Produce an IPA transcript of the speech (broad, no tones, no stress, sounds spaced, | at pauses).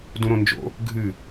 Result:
d ũ ɾ õ n d͡ʒ o̰ | ɡʱ ɨ